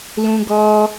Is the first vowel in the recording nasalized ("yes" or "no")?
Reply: yes